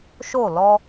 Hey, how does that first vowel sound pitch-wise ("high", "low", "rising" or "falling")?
falling